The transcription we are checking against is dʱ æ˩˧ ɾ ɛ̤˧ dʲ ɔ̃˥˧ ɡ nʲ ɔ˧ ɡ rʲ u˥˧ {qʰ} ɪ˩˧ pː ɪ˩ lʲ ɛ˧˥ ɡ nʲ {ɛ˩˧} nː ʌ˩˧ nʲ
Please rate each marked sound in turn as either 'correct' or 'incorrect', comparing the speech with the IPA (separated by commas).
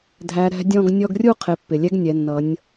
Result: correct, correct